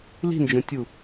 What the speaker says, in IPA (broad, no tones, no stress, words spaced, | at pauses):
li̤nd͡ʒõtʲu